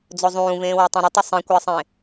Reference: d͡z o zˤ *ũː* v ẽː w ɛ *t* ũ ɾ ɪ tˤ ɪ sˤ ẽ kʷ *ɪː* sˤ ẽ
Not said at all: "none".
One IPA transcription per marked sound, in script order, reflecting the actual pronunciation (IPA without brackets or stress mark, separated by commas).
ũː, tˤ, ɪː